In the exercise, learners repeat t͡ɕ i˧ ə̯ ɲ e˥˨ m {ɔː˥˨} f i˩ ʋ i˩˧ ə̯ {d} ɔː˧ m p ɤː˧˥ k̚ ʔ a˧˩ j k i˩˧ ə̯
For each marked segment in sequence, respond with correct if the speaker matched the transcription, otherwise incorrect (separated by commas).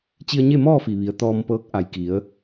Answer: correct, incorrect